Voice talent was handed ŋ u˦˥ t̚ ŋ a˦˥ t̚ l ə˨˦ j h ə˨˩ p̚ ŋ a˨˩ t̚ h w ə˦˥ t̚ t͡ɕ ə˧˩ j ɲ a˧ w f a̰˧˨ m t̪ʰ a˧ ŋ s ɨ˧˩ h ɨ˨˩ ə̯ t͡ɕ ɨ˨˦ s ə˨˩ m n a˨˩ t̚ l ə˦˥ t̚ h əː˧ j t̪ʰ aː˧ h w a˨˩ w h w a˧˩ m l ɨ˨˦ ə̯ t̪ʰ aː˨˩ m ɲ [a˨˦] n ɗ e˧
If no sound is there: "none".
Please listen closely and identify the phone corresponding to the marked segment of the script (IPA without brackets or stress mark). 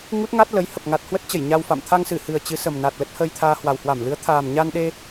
a˧